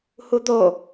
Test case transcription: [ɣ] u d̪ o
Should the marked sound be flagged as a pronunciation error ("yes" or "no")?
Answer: yes